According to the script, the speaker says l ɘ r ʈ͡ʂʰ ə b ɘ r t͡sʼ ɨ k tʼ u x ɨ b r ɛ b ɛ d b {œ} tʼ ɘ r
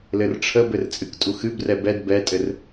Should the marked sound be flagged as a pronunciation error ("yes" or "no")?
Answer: yes